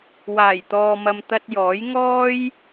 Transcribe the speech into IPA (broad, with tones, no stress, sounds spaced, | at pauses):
w aː˨˩ j t̪ ɔː˨ m ɐ˨ m t̪ ɐ˧ t̚ j ɔː˨˥ j ŋ ɔː˥ j